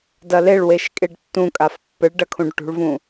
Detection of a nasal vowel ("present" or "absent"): present